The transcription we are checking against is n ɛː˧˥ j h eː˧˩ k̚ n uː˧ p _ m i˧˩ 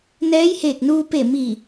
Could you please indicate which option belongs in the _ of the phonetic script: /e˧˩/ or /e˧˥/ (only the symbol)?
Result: e˧˩